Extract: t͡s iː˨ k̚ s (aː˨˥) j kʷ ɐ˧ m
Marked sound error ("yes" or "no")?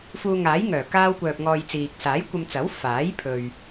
no